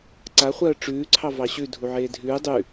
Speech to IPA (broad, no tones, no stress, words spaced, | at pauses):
ǀaχʷɜː ʈ͡ʂʉːǀʰɑ vɑɕʉ dʱuʕeːdʱʉː dˤʉ